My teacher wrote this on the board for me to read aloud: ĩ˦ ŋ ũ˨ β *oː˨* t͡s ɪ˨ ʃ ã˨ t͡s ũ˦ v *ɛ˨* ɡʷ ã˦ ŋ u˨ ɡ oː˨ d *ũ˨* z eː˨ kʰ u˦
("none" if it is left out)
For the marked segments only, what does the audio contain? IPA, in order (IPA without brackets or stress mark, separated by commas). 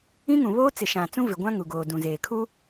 oː˦, ɪ˨, ũ˨